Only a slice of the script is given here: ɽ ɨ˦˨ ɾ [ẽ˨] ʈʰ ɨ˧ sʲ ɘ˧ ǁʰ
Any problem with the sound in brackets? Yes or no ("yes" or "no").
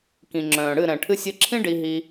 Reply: yes